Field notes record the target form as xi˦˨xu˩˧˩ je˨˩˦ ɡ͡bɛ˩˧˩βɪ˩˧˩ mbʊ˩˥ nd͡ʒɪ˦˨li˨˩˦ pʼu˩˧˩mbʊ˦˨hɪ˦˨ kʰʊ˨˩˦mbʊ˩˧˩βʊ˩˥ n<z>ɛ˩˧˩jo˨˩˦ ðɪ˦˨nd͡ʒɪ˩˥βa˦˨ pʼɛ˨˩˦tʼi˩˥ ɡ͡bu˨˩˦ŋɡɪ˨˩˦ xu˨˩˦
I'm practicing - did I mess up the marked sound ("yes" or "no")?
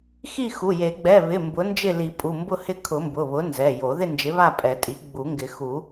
no